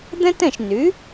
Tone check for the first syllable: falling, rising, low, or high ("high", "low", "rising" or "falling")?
high